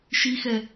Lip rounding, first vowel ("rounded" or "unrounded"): unrounded